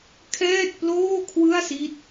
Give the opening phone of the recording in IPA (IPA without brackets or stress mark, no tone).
kʰ